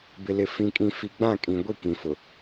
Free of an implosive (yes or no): yes